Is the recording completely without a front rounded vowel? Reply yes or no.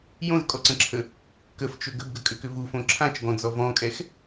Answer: no